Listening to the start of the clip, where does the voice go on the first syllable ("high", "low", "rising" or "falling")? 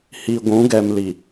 low